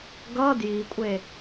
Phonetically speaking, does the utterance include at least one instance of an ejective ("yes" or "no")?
yes